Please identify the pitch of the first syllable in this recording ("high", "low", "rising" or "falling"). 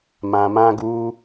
low